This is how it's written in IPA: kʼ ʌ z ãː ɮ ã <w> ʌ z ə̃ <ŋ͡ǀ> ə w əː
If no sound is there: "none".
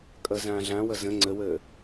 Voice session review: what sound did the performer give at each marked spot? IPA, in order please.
w, ŋ͡ǀ

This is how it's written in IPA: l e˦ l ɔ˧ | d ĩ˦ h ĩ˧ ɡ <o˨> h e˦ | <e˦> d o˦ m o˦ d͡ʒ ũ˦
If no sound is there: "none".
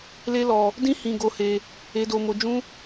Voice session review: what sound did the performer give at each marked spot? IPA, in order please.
o˦, e˦

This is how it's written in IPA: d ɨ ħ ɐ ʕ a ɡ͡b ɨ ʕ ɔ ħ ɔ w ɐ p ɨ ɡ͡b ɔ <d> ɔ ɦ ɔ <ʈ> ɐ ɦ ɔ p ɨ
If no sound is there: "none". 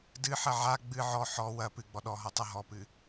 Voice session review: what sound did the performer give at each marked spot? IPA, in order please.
ɗ, tˤ

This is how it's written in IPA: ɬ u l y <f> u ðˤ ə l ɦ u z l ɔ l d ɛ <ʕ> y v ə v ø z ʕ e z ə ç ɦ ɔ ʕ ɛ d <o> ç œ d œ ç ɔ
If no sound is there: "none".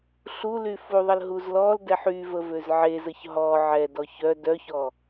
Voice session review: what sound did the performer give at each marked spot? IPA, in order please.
f, ħ, ɔ

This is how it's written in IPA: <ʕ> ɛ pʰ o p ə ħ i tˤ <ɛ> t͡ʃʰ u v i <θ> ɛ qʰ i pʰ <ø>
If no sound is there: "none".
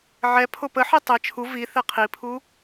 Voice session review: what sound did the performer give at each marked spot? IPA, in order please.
ʕ, ɛ, θ, u

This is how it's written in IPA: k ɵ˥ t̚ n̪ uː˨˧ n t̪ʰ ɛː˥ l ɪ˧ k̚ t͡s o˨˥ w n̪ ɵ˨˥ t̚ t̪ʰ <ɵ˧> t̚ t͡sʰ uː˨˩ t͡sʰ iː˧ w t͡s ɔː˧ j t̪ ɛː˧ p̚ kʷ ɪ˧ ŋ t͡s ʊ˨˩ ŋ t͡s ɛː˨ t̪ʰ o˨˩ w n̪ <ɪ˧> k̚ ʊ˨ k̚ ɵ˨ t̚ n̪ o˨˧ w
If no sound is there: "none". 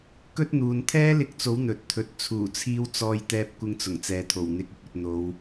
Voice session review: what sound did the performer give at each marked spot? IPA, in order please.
ɵ˧, ɪ˨˥

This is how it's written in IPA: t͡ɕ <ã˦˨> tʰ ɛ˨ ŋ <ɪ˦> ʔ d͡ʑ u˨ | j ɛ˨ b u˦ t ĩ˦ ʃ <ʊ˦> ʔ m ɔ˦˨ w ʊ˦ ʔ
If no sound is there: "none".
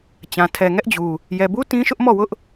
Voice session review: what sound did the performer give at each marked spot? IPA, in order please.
ã˨, ɛ˦, ʊ˦

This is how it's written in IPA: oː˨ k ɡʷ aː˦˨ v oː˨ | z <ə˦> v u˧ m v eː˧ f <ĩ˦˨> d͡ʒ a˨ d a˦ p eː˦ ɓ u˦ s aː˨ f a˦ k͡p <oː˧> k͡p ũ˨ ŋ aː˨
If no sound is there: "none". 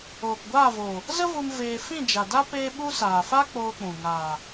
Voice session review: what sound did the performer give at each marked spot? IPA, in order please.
ə˦, ĩ˦˨, oː˧

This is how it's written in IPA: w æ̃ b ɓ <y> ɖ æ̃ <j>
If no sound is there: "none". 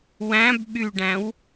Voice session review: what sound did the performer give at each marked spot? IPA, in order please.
y, w

